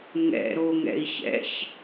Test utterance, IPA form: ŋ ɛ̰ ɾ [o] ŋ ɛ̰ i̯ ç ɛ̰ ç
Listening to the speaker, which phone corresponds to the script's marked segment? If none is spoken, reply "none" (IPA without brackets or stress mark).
o